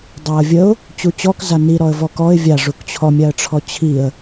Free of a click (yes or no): yes